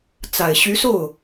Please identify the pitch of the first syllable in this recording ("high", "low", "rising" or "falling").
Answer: low